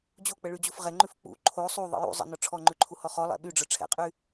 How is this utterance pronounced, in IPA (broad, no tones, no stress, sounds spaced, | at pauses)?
d͡ʑ o k͡p ə ɭ y d͡ʑ u f ʁ ɛ ŋ͡ǃ ʉ f k͡p ṵ ǃʰ o sˤ u ðˤ ə̰ j ṵ zˤ ə̰ n ɔ ʈ͡ʂʰ ɔ ŋ͡ǃ ʉ ǃʰ u h ɔ χ ɔ lˠ ɛ̰ ɓ y ɖ͡ʐ ə˞ ʈ͡ʂʰ ɛ̰ qʼ y